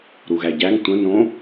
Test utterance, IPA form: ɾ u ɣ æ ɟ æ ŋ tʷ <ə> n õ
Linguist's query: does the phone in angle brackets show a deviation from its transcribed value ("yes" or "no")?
yes